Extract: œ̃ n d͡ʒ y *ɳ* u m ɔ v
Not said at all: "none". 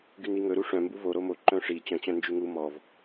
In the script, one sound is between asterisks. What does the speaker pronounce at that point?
ŋ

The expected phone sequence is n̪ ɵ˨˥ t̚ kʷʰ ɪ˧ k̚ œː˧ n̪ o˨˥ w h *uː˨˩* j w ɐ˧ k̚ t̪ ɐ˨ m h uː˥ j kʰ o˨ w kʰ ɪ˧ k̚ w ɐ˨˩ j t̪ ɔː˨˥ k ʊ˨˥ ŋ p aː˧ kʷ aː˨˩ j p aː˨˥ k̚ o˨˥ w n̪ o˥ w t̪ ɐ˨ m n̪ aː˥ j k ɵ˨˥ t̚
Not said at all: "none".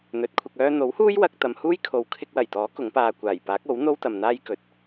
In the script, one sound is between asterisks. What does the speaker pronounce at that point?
uː˥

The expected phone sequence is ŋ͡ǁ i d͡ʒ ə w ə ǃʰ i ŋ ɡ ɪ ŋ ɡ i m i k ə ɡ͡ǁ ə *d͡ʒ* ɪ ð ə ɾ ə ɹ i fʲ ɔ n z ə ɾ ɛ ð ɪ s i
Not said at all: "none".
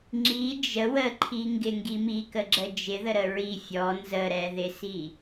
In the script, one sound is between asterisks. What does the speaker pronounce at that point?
d͡ʒ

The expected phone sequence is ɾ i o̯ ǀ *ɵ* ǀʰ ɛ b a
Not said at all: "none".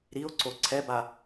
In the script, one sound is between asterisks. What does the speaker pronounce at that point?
o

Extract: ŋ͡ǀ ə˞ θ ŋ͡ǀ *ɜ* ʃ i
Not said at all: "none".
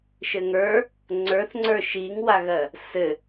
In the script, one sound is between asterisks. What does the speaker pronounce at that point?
ə˞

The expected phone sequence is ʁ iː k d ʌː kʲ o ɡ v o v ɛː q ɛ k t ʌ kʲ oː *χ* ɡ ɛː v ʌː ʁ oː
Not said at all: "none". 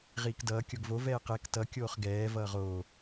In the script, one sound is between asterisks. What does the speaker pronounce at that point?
χ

